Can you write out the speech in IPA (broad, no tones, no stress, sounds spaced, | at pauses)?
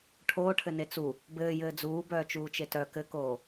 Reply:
ʈʰ oː ʈʰ ɘ n e t͡s u | b ɘː j ɘː d͡z uː b œː t͡ʃ uː t͡ʃ e t œ k ɘ k oː